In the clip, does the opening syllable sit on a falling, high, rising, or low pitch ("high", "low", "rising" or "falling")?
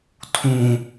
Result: low